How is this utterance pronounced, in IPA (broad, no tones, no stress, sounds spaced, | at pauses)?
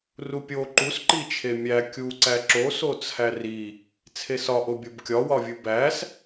r u pʲ o ǃ u s ǃ i t͡ʃʰ e mʲ æ kʲ u ǀ æ ǁ o s o t͡sʰ æ r i | t͡sʰ e s ɒ ʔ o bʲ o b kʲ ɒ w ɒ vʲ u b æ s